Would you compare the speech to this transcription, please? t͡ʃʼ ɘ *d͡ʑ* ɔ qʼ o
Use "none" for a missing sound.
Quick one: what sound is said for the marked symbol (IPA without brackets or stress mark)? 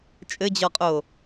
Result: d͡ʑ